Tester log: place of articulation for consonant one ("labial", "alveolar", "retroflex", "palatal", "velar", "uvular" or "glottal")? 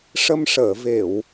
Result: retroflex